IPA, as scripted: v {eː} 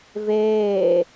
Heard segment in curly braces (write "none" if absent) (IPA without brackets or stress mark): eː